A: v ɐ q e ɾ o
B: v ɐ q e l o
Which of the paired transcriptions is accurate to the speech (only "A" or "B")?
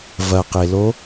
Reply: B